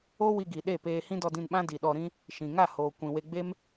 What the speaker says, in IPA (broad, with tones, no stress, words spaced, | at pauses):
o˦ wi˧ɡi˨ɗe˦˨peː˧ hĩ˦dɔ˧dĩ˧nɓã˦ di˨ɗɔ˧ɾĩ˦ | ʃĩ˨ŋa˦˨ hoː˨kʷĩ˨we˧ɡ͡be˦m